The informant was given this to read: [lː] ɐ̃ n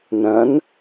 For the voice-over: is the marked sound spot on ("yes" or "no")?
no